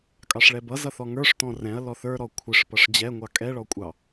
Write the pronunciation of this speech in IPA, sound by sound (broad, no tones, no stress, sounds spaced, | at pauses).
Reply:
kʼ ɑ ʂ ɭ ɛ b ʌ z ʌ θ ɔ ŋ ə˞ ʂ t ɔ̃ r ɛ̃ ɐ̯ l ɔ θ ə˞ ɾ ɔ kʷʰ ɪ ʂ p ʌ ʂ d͡ʑ ɛ ŋʷ ɑ kʼ ɛ ɭ ɔ kʷʼ ɑ